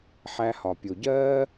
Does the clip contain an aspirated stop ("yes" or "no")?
no